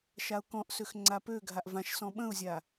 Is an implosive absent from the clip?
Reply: no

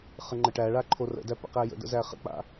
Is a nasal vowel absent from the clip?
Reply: yes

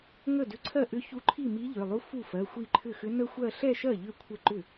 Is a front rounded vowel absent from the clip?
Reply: no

